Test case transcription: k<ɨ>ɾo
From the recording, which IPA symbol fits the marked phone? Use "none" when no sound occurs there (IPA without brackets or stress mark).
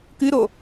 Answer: ɨ